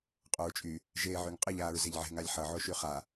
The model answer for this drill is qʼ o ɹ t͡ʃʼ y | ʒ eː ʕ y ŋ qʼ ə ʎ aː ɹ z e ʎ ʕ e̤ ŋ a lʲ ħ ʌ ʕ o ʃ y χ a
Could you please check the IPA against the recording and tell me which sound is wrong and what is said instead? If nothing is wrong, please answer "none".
none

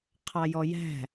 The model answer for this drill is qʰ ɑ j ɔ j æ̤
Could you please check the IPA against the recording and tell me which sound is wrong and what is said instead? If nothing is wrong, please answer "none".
none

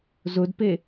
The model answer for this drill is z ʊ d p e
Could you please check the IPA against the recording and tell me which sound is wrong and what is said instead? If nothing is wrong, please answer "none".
none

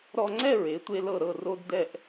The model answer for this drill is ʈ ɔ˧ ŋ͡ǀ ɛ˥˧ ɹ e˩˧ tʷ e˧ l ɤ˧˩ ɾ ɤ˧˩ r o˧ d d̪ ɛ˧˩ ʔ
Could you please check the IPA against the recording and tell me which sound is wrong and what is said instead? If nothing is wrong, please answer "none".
ʈ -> ɾ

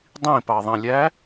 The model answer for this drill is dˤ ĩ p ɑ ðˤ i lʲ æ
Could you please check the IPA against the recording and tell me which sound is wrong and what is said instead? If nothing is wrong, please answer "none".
i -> ĩ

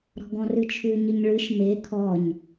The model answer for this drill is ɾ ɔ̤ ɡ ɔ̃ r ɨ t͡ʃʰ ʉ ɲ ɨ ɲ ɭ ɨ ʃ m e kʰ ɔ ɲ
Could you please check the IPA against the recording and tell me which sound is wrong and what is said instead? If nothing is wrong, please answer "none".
none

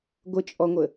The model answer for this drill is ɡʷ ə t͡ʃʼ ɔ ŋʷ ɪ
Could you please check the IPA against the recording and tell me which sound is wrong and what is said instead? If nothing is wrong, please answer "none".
ɪ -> ə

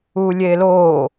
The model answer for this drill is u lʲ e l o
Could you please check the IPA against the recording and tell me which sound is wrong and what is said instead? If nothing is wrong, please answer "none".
none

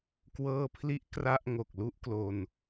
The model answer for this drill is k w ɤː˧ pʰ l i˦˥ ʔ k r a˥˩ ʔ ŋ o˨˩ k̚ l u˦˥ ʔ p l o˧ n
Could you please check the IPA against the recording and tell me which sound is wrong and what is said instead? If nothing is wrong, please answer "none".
p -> k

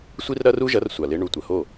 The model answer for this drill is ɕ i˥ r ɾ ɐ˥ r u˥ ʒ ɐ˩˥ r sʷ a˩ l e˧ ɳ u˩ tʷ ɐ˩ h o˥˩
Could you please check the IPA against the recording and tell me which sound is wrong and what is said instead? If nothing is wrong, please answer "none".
ɕ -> sʷ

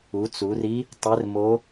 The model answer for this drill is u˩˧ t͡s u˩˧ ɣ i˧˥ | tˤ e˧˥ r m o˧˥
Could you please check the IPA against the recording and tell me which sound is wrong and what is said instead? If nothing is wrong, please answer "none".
ɣ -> r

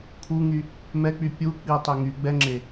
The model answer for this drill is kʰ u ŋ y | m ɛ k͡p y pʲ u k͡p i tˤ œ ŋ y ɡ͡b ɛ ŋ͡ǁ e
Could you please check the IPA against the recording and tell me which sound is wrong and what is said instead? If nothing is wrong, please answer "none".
none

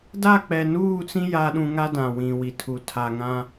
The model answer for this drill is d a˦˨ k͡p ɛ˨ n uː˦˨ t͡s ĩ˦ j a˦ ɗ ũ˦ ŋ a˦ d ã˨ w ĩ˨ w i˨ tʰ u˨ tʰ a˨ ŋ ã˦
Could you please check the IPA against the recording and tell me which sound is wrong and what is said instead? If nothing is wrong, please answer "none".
none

